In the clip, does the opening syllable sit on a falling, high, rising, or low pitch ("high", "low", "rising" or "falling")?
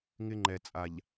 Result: high